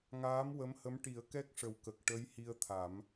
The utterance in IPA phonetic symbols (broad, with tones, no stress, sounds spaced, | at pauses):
ŋ aː˧˥ m w ə˧˥ m h ə˧˥ m ʈ i˨˩˦ ə̯ k ɛ˦˥ k̚ ʂ ə˨˩ w k ə˨˩ k̚ ʈ ə˧˥ j h i˧ ə̯ t̪ʰ a˨˩˦ m